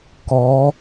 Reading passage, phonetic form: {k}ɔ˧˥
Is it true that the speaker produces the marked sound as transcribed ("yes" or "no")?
yes